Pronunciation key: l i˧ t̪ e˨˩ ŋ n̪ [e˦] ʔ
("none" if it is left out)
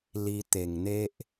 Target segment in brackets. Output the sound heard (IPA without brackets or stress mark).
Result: e˦